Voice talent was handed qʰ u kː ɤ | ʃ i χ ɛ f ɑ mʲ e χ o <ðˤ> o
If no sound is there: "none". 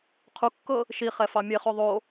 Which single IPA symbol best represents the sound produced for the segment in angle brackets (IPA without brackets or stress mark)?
ðˤ